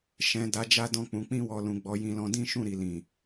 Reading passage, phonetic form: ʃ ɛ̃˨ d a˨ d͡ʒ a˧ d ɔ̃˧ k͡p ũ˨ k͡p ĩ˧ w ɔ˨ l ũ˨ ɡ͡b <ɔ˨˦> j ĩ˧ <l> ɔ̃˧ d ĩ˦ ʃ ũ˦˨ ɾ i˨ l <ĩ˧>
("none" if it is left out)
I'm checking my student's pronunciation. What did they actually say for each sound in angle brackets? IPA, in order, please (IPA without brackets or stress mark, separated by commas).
ɔ˨˦, l, ĩ˨